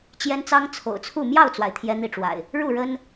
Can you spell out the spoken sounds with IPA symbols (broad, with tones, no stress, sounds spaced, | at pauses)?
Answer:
t͡ɕ j ɛ˦ n t͡s ɑ˦ ŋ t͡sʰ o̰˨˩ ʊ̯ t͡sʰ u˥˨ m j ɑ˥˨ ʊ̯ t͡s w a˩ ɪ̯ t̪ʰ j ɛ˦ n̪ i˥˨ ʈ͡ʂ w a̰˨˩ ɪ̯ | ɻ u˥˨ ɻ ə˦ n